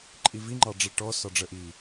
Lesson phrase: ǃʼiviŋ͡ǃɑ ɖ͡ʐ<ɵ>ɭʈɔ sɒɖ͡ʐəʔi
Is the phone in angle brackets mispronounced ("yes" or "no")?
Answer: yes